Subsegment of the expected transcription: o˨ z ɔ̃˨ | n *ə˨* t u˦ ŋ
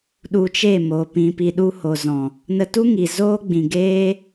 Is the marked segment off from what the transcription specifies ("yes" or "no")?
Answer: yes